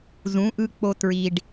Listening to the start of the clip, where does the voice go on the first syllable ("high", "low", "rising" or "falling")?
rising